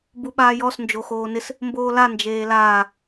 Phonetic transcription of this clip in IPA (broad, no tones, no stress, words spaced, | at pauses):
buɓaːjɔs nd͡ʒoxoːnɪs | mboːla nd͡ʒeːlaː